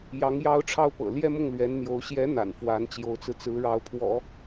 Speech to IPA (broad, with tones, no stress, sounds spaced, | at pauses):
j ɑ˧˥ ŋ j ɑ˥ ʊ̯ ʈ͡ʂʰ ɑ˥ ʊ̯ p ɤ̰˨˩ l j ɛ˥˧ m ʊ˥˩ ŋ l ɥ ɛ˧˥ n n̪ j o˧˥ ʊ̯ ɕ j ɛ˧˥ n̪ a̰˨˩ n f w a˧˥ n t͡ɕ j o˧˥ ʊ̯ t͡s ɹ̩˧ t͡s ɹ̩˧˥ ɻ ɑ˧˥ ʊ̯ pʰ w ɔ̰˨˩˦